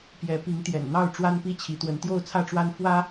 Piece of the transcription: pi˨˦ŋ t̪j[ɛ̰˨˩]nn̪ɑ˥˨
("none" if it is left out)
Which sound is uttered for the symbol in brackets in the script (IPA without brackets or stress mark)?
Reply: ɛ̰˨˩